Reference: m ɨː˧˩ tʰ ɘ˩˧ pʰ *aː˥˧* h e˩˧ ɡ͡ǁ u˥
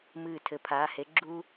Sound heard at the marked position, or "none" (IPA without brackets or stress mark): aː˩˧